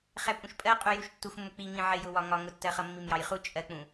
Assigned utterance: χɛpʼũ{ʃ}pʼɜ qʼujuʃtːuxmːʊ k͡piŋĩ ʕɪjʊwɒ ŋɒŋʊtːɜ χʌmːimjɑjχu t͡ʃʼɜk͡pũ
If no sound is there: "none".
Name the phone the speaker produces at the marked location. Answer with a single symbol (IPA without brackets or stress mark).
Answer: ʃ